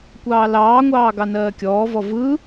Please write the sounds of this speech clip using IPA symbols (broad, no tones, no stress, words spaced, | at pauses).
kʷɑːlɑːŋʷɑː ɡɑnɜːkʲɔːvɔ vɯ